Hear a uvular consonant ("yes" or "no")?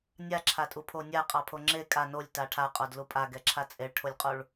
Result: yes